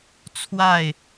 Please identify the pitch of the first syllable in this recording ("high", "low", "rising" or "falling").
falling